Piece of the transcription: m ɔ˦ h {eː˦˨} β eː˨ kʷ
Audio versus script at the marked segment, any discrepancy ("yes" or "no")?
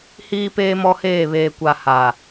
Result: no